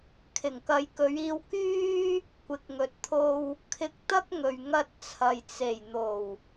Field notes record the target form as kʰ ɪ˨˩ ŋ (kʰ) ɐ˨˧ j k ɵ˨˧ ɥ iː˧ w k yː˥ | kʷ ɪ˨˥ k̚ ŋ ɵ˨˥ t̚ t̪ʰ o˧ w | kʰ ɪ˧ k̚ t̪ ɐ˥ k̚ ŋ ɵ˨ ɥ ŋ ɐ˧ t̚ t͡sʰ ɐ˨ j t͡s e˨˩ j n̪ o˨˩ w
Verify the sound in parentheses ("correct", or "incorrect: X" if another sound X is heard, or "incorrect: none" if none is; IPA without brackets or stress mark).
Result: incorrect: k